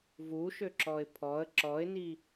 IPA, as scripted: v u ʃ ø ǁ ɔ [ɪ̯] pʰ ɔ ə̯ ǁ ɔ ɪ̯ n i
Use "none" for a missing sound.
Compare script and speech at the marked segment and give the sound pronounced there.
ɪ̯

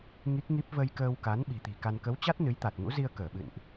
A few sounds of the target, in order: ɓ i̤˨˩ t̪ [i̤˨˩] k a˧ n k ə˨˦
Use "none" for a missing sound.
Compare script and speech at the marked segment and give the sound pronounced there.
i̤˨˩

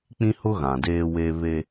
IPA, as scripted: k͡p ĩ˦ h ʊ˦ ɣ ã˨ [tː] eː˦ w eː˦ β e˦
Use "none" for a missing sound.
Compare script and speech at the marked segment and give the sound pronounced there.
d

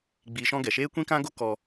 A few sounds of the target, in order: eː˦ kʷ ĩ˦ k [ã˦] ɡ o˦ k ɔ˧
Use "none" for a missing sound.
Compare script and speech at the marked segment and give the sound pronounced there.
ã˦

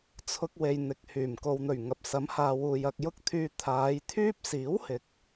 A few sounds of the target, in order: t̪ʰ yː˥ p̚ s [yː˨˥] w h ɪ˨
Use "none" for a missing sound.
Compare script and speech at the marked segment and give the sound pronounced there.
iː˨˥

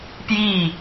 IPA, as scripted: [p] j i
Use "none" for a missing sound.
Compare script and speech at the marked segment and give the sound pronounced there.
p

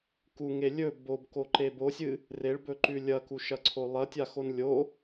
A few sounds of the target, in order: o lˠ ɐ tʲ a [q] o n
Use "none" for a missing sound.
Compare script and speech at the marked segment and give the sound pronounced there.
x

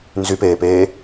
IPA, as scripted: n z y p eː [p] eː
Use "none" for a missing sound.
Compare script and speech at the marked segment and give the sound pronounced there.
p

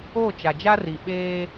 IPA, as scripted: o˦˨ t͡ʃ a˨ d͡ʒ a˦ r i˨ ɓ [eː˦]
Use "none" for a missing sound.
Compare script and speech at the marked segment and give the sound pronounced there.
eː˦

